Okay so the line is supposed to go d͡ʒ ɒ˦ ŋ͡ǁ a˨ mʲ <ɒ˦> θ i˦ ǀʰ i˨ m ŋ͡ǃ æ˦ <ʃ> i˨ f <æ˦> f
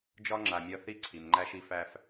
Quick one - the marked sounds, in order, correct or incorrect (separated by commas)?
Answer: correct, correct, correct